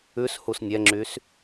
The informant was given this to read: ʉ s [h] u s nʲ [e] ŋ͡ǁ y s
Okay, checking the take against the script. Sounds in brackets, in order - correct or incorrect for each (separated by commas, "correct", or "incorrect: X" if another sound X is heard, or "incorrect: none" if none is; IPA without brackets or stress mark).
correct, incorrect: ɛ